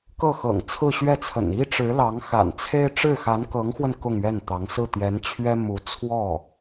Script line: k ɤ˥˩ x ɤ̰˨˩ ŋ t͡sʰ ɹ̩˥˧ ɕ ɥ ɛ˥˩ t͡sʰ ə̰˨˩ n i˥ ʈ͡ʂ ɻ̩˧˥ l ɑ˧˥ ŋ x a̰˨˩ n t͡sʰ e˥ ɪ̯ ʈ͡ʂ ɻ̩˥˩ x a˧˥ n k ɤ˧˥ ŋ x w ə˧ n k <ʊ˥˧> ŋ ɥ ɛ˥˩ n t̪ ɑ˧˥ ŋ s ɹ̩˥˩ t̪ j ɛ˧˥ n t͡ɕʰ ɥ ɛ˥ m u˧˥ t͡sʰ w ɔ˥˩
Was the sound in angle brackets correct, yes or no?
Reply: yes